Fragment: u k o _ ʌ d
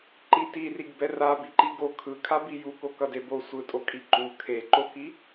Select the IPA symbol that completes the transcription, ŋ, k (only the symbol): k